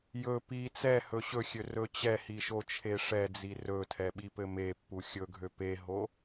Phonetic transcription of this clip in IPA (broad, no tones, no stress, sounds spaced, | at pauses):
j ɵ p i t͡s ɛ h ɵ ɕ ɵ xʲ ø r ɵ t͡ɕ ɛ h i ʃ o t͡ʃʰ e ʂ ɛ d͡z i r ɵ tʰ ɛ ɓ i p ɘ m e pː u xʲ ɵ ɡʱ ø p e ɦ o